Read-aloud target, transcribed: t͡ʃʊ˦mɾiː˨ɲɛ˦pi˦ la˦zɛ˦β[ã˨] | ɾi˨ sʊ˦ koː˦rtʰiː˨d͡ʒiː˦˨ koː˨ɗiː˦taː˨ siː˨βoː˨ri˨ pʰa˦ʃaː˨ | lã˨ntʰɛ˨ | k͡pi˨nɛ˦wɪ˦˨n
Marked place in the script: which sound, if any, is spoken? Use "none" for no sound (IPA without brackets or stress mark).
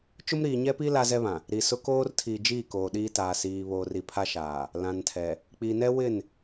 ã˨